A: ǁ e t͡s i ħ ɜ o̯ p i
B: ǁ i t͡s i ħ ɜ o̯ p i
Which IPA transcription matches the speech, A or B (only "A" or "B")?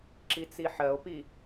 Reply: B